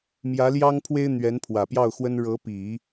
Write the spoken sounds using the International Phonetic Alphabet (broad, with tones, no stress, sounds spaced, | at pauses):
m j ä˧˥ l j ɑ˥ ŋ pʰ w e˥ ɪ̯ n̪ ɥ ɛ˧˥ n pʰ w ä˨˩ p j ɑ˥˩ ʊ̯ x w ə˥ n ɻ ɤ˧˥ p i˨˩˦